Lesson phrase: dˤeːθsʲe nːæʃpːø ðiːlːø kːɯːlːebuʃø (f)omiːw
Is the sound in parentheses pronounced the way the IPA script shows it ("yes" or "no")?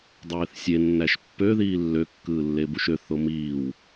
no